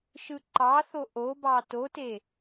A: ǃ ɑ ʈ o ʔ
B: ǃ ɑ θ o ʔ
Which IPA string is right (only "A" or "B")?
B